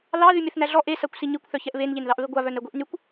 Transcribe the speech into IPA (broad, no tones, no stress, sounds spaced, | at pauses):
l ɑ ð y mʲ ɛ θ n æ ɮ ɔ ʔ e s a kʷ s i ɲ i kʷ θ œ ç ɛ ʔ β e n ʎ e n ð ɑ ʔ β e ɡʷ a β œ n ɛ ɡʷ i ʔ n y kʷ